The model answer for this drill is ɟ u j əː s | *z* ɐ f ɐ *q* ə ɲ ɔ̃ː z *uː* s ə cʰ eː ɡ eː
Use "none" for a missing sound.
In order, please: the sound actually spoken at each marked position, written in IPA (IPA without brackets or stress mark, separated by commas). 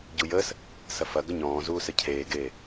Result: s, ɡ, uː